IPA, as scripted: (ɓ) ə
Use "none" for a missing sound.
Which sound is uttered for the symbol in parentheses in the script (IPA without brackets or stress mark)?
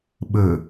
ɓ